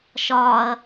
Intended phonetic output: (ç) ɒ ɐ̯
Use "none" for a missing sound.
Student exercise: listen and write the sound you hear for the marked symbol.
ʃ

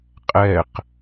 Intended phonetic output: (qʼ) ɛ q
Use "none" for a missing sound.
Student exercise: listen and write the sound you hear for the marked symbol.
qʼ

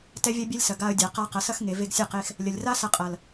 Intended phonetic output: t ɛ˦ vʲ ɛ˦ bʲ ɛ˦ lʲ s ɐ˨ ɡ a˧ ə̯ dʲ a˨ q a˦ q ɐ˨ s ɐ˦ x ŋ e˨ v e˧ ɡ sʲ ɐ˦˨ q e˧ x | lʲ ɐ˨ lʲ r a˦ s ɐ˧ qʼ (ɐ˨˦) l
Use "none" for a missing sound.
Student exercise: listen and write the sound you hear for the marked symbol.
ɐ˨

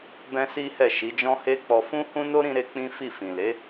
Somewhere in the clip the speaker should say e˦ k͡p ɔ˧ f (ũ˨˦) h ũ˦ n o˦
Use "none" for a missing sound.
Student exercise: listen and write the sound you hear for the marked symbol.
ũ˦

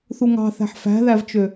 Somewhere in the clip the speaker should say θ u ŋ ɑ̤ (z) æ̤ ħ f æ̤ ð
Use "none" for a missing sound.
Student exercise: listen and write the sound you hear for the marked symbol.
θ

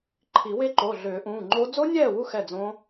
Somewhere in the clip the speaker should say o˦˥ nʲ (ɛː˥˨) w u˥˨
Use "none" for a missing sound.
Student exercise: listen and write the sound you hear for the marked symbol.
ɛː˥˨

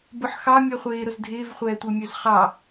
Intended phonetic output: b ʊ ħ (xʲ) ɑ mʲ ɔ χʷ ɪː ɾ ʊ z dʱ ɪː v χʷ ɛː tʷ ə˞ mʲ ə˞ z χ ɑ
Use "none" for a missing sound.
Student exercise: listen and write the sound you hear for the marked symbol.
x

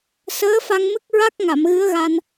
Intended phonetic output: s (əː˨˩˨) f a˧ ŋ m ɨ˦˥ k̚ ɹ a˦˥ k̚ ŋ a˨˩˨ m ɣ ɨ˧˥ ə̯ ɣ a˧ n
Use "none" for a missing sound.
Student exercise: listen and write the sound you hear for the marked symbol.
əː˧˥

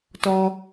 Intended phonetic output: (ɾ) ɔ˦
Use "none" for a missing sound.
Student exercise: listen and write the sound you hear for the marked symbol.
t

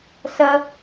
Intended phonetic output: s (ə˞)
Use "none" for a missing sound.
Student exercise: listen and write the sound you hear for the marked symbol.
ɐ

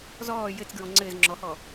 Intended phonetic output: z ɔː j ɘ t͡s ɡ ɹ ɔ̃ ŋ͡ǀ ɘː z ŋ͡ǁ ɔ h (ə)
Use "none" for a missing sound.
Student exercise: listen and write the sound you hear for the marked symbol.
ɔ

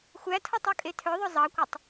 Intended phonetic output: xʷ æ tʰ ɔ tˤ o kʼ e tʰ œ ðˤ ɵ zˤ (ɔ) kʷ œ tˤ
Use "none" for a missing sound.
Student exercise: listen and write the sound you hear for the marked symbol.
ɑ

